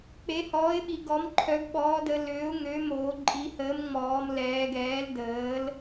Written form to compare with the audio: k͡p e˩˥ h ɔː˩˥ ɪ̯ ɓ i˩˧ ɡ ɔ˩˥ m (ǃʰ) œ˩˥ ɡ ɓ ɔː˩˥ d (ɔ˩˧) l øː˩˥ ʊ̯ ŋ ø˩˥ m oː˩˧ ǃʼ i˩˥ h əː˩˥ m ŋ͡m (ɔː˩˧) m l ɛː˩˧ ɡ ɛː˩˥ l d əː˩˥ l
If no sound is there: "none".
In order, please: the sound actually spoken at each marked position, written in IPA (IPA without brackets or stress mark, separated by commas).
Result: ǃʰ, ə˩˧, ɔː˩˧